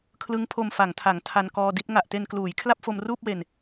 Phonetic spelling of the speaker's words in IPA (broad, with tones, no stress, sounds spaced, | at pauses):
kʰ l ɯ˦˥ ŋ pʰ o˧ m f a˩˦ ŋ tʰ a˩˦ ŋ tʰ a˧ n k ɔː˧ d i˦˥ t̚ ŋ a˨˩ ʔ t e˧ n k l uː˩˦ j kʰ l a˥˩ p̚ f o˧ m r uː˥˩ p̚ w e˧ n